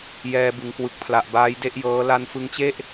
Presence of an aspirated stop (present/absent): present